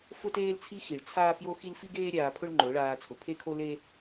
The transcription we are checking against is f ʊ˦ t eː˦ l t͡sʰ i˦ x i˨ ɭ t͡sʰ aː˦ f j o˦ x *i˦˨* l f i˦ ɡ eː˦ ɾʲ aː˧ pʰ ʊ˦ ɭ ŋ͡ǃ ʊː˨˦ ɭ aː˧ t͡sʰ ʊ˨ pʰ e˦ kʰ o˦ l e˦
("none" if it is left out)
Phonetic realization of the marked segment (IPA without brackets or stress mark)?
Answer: i˦